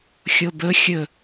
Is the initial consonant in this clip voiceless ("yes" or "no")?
yes